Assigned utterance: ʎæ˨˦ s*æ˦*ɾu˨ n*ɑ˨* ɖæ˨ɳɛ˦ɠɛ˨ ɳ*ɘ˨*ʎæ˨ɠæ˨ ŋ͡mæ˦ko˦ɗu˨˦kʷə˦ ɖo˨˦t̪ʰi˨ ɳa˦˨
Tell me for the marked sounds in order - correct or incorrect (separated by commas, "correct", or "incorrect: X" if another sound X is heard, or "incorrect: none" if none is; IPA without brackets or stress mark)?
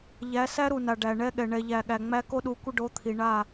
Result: correct, incorrect: a˨, incorrect: ɛ˨